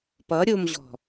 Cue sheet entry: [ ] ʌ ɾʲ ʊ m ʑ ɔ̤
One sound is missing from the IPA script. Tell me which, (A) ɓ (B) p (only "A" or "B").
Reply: B